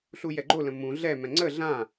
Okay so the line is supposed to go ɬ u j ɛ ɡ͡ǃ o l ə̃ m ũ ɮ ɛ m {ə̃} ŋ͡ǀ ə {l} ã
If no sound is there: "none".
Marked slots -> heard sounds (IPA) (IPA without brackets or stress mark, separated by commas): ɛ̃, ɮ